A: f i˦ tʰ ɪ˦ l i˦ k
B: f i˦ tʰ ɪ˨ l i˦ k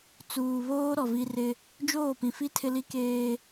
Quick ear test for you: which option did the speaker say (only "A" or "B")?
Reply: A